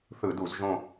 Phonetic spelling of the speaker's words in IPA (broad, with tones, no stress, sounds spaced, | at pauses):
θ ɯ˧˩˧ d u˧˩˧ z ʒ õ˦˨